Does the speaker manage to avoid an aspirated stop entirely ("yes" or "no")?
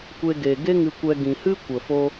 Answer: yes